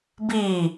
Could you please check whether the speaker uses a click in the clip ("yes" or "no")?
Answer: no